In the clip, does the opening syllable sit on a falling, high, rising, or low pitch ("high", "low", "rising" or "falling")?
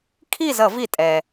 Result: falling